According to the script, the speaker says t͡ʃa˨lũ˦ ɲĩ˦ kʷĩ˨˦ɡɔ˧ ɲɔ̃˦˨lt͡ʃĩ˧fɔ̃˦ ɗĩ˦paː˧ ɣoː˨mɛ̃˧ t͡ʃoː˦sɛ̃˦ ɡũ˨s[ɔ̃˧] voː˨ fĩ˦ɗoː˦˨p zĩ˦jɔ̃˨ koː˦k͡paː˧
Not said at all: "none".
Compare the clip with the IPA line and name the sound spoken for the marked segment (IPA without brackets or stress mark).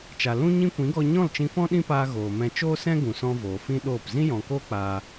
ɔ̃˧